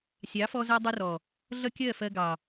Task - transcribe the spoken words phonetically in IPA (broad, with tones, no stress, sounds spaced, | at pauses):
sʲ ɑ˨˦ f ɔ˧ z æ˧ dˤ ɪ˧ r ɔ˨ | ɮ ʌ˦ kʲ ɜ˦˨ f ɜ˧ ɡ ɑ˨